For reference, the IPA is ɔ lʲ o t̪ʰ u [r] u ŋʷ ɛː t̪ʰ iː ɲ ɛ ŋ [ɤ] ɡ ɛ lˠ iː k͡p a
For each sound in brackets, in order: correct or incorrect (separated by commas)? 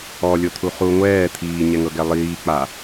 incorrect, correct